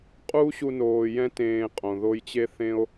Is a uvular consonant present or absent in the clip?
present